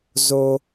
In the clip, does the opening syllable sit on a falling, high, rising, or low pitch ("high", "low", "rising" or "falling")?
high